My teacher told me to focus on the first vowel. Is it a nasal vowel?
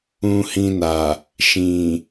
yes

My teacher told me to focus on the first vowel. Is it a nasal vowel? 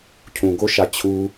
yes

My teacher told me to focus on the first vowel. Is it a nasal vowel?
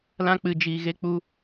yes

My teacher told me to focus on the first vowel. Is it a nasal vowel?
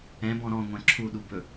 yes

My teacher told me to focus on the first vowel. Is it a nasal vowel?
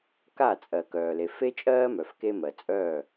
no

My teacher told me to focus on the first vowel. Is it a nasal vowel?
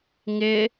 no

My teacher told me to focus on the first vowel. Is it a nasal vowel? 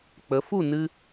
no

